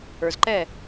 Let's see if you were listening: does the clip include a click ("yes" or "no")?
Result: yes